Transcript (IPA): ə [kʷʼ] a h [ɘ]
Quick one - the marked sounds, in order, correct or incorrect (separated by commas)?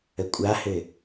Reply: correct, correct